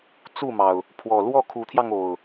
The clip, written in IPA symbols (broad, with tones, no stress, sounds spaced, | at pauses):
t͡s u˥˨ m ɑ˩ ʊ̯ | pʰ w ɔ˨˩ l w ɔ˥˨ kʰ u˨˦ t̪ʰ j ɑ˧ ŋ o˨˩ ʊ̯